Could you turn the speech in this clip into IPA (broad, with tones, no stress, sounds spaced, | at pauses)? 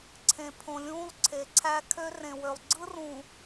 ǀʰ ẽ˨ pʰ õ˨ lʲ ũː˦ lˠ ǀʰ e˨˦ ǀʰ æ˦ kʰ ø˦ r ẽ˨ w ø˨ lˠ ɡ͡ǀ ɯ˦ r ũ˨